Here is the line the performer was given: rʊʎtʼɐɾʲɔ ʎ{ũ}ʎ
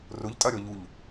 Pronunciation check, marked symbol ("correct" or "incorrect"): incorrect